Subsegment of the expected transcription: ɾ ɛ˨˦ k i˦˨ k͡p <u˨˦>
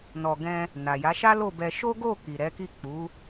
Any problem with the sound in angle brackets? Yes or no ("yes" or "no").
no